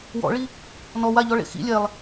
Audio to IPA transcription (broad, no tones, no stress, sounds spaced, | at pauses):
w ɔ̰ ɭ i | n ɔ w a ʎ ɔ ɭ ḛ x ḭ lʲ ɛ lˠ